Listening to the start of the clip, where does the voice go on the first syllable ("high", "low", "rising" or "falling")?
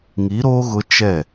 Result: rising